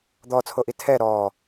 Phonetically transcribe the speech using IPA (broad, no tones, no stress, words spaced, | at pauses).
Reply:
d̪ɔt͡sʰoʔi tʰɛ ɾɔː